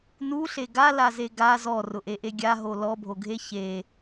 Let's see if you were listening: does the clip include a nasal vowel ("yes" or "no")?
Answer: no